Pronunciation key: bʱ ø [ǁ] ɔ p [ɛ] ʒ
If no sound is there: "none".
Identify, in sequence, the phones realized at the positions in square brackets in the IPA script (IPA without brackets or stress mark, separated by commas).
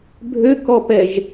k, ɛ